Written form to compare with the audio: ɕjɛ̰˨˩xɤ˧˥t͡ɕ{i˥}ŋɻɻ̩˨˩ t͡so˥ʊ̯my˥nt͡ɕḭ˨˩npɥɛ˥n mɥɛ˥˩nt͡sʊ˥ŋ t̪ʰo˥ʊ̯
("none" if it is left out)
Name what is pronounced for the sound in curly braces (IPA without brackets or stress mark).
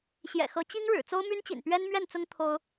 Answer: i˥